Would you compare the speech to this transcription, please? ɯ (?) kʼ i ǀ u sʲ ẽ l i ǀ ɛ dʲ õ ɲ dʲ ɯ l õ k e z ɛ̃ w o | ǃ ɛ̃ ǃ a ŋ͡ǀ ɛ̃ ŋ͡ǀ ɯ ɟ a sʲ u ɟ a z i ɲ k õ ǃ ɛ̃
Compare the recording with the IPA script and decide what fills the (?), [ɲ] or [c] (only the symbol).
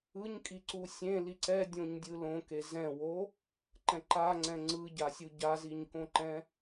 ɲ